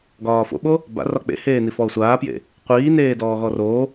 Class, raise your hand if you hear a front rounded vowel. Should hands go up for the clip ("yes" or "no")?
no